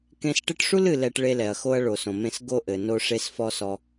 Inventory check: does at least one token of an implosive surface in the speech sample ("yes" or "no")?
no